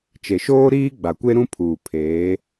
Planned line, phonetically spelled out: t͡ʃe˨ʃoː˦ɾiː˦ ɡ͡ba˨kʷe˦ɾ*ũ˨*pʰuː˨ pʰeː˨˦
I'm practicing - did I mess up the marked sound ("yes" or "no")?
yes